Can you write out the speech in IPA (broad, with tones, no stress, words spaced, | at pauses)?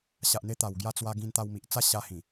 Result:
ɕa˨ʔn̪e˧t̪a˨˩w ɡja˧t͡swa˧ ɡĩ˧nt̪a˧wmi˨ʔ t͡sa˦ɕa˧hĩ˨˩